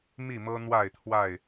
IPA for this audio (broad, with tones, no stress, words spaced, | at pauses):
mi˥˨mɤ˦ n̪wa˥˨ɪ̯t̪ʰwa˥˨ɪ̯